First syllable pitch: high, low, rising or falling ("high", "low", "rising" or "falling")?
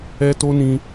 high